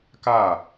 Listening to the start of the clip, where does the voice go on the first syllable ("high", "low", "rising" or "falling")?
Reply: falling